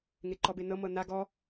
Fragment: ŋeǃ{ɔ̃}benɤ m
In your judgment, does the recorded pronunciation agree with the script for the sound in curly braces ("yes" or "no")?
no